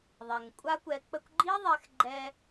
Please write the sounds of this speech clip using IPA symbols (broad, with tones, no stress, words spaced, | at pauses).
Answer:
ðˤɛ˨ŋkʷʼa˦kʷɛ˧ k͡pə˦kʷ ɡ͡ǃi˦ ðˤɛ˧xɡ͡ǃɛ˧